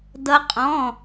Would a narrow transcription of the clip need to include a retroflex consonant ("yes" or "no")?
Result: no